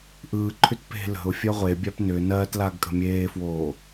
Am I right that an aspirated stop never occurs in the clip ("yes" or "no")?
no